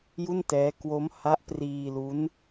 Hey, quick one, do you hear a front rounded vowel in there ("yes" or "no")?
no